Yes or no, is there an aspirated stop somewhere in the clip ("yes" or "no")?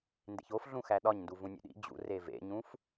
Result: no